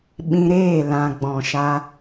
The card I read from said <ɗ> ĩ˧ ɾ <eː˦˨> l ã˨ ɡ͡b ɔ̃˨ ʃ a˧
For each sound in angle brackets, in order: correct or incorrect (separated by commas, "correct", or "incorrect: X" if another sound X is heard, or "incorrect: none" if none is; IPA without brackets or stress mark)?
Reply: incorrect: ɓ, correct